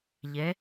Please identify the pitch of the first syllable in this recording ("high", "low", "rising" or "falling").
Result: rising